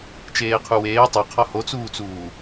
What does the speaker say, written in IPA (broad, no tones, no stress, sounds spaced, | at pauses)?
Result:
t͡ʃ eː qʰ u w eː tˤ ɛ qʰ ɔ h o t͡s uː t͡s uː